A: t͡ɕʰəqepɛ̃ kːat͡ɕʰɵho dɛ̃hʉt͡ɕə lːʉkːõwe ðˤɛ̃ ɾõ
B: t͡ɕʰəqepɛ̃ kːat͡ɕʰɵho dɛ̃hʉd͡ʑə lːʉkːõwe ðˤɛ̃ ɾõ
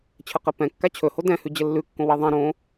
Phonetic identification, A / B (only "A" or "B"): B